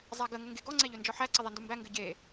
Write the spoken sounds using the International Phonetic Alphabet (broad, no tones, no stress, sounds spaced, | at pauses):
zˤ æ ɡ ə ŋ ə ŋ ɡ e ɡ ɔ ŋ͡ǀ ɛ ʎ ø n d͡ʒ ɔ ħ æ ǀ ɘ ðˤ ɛ n d u m b æ ŋ ɡ ɘ ɟ e